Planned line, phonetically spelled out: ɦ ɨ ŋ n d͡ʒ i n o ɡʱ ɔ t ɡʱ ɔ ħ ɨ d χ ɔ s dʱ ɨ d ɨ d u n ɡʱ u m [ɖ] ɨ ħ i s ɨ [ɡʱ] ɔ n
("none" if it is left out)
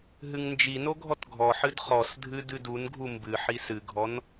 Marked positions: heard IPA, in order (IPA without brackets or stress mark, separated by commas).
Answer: b, ɡʱ